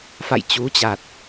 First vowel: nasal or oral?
oral